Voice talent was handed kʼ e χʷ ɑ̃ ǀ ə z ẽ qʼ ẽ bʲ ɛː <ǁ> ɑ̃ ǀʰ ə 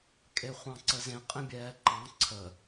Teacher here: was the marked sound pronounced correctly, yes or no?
no